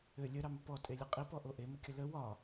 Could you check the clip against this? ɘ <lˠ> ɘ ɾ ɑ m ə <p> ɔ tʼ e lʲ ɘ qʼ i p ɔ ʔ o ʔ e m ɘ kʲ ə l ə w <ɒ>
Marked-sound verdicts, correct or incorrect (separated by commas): incorrect, correct, correct